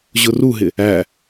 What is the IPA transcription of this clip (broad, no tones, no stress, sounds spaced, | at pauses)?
ʑ ʊ r u ɦ ɪ | æ